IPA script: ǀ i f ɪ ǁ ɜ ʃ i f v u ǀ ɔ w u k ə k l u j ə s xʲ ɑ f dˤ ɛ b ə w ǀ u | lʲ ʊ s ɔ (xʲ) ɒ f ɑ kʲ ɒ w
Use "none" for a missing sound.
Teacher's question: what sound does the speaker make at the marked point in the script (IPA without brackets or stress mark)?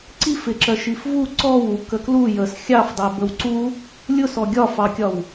ɡʲ